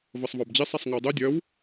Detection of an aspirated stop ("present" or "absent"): absent